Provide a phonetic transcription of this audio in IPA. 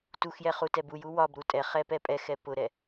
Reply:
t u x j ɛ χ u t ɛ b u j u w ɒ b ɾ u tʼ ɛ χ ɛ p ɛ pʼ ɛ x ɛ p ʊ ɾ ɛ

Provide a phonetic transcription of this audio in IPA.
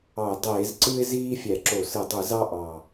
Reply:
ɑ˧˩˧ ə̯ dˤ eː˧˩˧ z ǀ ɯ˦ ɪ̯ z iː˦ fʲ æ˧˩˧ ǁ o˧˩˧ s ɯ˧˩˧ dˤ ɯ˧˩˧ z ɑ˦ ʔ ɑ˨˩

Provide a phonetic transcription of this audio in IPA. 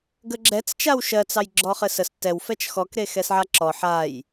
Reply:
ɡ ə ɡ͡ǁ ɛ t͡s t͡ʃ a w ʃ ɜ t͡s ɑ j ɡ͡ǁ ɔ χ ɘ s ə s t ɛ w f ɛ t͡ʃ x ɔ k ɾ e x ɛ s ʕ a ǁ ɔ ħ a j

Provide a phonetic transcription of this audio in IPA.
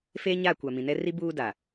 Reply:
f e˦ ɲ a˦˨ kʷ a˨ m ĩ˨ n ɛ˦ r i˦ b uː˦ d a˨

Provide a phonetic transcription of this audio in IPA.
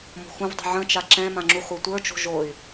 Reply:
m o̤ x ũ v dˤ ṳ ʕ ə̃ t͡ʃ a ǁ ɛ̃ m ã ŋ͡ǁ u χʷ e tʷ ə˞ t͡ʃ o̤ ʒ o y̯

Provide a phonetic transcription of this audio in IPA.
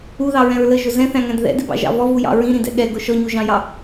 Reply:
u ð ɑ ɹ ɛ̃ ɹ l ə ʒ ʊ z ɛ̃ θ æ̃ ŋ æ̃ d ð ɛ̰ d ɪ b ɑ̰ ʒ ɑ̰ v ɔ v u j ɑ̰ ɹ ĩ ɾ ĩ d ɛ̰ ɠ ɛ ɡ ʊ ʃ ɔ ɲ u ʒ ɑ̃ j ɑ

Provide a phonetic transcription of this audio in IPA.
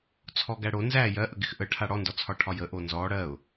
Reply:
t͡sʰ ɔ ɡ æ ɽ o n z æ j ɜ ʔ ə ɡ ɪ x ʔ ə ʈʰ a ɽ ɔ n d ɔ t͡sʰ ɒ ʈʰ ɒ j ə ʔ o n z ɔ ɽ ɜ ʊ̯

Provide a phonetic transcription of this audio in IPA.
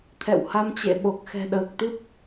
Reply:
t̪ʰ ɛ̰˧˨ w h a˧ m t͡ɕ ḛ˧˨ ɓ o˨˩ k̚ x ɛ̤˨˩ ɗ əː˨˩ k̚ t̪ ɨ˦˥ p̚

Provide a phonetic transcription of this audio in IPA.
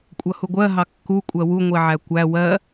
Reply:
kʷʼ ʌ h u ɡʷ ɜ ɦ ɑ kː u kʷʼ ɜ w u ŋʷ i ʕ æ kʷ æ w ɜ

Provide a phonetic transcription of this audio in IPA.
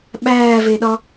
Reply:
ɓ æː v e ɗ ɒ

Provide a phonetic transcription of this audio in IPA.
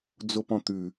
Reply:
d͡z o p ɔ̃ t̪ ʉ

